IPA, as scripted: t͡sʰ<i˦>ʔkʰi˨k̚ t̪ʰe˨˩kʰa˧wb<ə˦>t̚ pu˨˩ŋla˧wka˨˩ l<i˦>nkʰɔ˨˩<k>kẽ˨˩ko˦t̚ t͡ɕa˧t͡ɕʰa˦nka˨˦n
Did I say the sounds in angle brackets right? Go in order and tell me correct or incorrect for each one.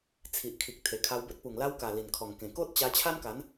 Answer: incorrect: i˨, correct, incorrect: i˨˩, incorrect: ŋ

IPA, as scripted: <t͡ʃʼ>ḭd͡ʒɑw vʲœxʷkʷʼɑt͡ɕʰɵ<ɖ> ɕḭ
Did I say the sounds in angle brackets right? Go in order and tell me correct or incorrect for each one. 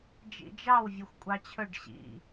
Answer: incorrect: d͡ʒ, correct

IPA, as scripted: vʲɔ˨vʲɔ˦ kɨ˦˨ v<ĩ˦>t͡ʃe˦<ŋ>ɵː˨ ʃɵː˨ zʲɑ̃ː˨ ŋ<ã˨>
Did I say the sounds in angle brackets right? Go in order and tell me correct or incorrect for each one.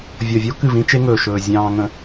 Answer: correct, correct, incorrect: ə̃˨

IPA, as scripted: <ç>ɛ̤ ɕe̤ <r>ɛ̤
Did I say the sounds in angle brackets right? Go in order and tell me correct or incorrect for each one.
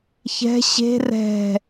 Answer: correct, correct

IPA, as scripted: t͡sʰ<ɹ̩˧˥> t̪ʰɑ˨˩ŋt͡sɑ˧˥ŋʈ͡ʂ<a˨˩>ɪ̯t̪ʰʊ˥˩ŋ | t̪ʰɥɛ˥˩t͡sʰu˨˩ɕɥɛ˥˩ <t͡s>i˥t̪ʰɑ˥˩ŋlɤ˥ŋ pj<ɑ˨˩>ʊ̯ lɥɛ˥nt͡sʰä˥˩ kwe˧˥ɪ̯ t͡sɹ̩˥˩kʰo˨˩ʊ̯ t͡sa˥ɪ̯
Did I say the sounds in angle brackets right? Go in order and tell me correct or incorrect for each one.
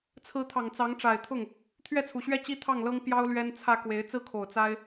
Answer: correct, correct, incorrect: t͡ɕ, incorrect: ɑ˥

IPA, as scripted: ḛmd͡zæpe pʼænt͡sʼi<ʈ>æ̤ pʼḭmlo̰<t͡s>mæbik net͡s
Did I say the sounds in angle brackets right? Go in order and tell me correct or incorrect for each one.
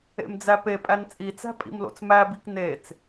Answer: incorrect: t͡s, correct

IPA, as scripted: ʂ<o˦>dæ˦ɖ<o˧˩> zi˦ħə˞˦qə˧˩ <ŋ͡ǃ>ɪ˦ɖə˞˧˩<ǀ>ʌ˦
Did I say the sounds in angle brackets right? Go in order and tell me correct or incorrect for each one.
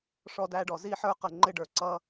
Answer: incorrect: ɔ˦, incorrect: ɔ˧˩, correct, correct

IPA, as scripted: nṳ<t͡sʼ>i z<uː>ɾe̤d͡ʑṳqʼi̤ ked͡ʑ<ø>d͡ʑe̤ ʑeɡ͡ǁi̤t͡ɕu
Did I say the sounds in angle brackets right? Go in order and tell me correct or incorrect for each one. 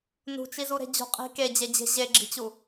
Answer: incorrect: t͡ʃ, incorrect: u, incorrect: e

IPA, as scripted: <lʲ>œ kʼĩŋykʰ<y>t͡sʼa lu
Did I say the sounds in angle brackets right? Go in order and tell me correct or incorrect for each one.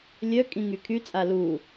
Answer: correct, correct

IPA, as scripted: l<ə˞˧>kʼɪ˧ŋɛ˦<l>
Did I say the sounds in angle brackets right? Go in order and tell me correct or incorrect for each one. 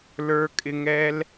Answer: correct, correct

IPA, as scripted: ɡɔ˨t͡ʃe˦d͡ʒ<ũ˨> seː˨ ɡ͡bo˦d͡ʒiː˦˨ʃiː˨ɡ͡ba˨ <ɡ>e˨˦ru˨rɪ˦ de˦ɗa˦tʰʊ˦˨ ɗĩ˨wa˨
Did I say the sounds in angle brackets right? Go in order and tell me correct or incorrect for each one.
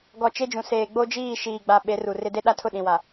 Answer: correct, incorrect: ɓ

